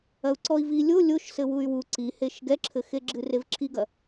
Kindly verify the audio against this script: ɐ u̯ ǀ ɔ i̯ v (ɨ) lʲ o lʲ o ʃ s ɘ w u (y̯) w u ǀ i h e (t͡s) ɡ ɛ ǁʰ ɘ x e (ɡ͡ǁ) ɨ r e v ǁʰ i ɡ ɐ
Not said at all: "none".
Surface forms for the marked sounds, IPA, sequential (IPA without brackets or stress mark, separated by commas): i, y̯, ʃ, ɡ͡ǁ